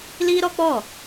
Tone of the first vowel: high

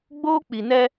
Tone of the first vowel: high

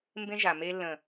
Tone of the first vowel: high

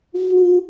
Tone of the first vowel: high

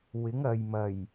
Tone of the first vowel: rising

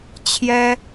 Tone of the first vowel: high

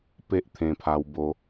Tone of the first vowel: high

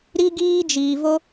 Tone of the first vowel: high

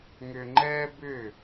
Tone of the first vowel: low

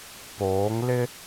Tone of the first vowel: rising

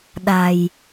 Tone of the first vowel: low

